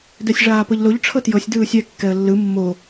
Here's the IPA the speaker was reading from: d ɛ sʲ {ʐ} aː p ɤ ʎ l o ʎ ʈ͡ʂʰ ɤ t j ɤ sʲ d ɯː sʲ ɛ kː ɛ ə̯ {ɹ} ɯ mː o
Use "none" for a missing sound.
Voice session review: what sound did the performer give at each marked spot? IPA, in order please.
ʐ, lː

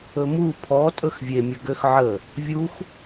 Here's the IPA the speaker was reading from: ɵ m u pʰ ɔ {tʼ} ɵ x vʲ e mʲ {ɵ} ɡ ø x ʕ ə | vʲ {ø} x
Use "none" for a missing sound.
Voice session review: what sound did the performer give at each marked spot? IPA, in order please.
tʼ, ə, u

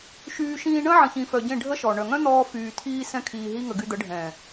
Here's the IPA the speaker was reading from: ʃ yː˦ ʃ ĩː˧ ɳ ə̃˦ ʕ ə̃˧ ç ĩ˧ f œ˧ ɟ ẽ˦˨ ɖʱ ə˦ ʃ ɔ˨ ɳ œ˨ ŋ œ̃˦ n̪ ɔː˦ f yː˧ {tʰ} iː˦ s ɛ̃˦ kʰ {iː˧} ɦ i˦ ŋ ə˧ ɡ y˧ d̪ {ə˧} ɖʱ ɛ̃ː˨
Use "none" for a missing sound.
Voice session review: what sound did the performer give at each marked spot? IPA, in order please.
tʰ, iː˧, ə˨˦

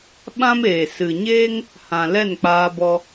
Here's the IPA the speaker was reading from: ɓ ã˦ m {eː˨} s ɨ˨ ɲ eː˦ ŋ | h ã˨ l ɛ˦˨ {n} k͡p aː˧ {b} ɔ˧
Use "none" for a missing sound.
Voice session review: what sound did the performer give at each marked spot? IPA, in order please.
eː˨, n, b

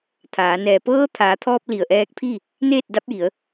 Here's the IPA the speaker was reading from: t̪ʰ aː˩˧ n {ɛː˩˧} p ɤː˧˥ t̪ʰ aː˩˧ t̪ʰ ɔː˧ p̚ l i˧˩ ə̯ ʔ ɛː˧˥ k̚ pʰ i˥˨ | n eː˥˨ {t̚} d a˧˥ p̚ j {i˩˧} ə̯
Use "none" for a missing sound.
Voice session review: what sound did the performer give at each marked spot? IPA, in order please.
ɛː˩, t̚, i˩˧

